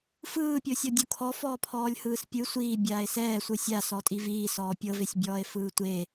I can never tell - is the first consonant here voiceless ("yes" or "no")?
yes